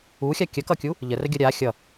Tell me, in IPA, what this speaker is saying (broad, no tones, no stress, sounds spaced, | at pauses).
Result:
u xʲ a kʲ ə k ʌ kʲ u | ʎ ə r ə ɡʲ ʌ ɾʲ a xʲ ʌ